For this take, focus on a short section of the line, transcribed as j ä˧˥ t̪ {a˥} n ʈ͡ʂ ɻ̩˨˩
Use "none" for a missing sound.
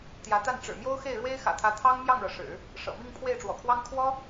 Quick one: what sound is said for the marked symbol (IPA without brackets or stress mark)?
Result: a˥˩